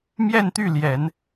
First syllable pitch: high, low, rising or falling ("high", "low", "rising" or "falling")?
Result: falling